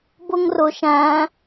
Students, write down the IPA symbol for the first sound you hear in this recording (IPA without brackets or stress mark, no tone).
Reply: b